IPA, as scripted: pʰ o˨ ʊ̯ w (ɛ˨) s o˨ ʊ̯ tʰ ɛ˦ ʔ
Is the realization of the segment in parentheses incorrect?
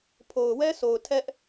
yes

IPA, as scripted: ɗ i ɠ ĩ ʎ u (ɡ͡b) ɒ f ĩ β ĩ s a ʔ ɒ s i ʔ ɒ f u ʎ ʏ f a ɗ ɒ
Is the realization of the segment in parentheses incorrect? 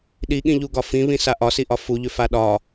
yes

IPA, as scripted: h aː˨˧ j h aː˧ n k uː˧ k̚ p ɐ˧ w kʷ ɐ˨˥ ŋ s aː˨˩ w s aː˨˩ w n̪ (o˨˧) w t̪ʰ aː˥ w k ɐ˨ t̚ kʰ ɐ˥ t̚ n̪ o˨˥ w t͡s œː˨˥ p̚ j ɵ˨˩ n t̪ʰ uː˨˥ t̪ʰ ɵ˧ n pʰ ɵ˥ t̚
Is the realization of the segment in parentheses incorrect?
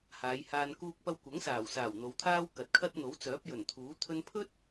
no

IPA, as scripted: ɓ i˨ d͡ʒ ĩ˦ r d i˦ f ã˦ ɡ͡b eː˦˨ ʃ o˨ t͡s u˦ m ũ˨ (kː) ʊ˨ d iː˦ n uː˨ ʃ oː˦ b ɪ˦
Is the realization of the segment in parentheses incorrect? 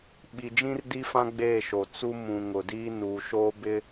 yes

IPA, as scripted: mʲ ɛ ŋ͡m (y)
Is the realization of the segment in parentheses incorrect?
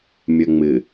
yes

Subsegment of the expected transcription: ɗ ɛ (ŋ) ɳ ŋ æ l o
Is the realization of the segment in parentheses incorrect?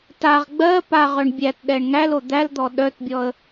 yes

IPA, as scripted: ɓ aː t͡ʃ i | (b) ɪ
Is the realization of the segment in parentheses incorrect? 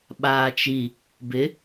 no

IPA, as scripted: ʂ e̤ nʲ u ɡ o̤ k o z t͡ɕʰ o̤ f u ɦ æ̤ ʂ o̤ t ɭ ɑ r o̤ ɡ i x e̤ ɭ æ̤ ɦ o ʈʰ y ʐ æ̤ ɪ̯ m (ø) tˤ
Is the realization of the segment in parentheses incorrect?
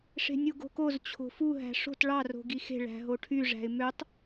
no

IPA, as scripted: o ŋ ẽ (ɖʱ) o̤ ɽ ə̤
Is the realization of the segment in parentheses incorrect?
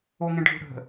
no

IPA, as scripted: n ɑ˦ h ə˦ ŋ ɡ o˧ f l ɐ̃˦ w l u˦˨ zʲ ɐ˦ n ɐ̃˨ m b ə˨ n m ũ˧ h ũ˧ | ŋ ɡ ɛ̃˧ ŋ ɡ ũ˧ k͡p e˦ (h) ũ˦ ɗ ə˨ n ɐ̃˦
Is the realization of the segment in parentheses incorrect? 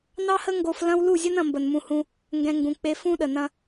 yes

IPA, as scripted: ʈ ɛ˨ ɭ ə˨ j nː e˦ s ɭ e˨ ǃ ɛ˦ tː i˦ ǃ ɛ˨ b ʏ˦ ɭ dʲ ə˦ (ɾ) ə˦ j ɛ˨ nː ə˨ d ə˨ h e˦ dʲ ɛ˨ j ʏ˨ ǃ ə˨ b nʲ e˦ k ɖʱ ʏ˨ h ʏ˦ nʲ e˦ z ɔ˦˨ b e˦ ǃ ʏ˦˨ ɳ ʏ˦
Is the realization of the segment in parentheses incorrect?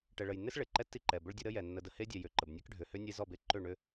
no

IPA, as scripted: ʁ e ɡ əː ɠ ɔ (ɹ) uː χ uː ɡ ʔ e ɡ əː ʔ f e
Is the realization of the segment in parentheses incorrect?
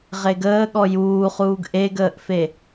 yes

